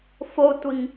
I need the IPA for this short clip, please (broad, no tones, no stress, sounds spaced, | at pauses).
f o tʷ i ŋ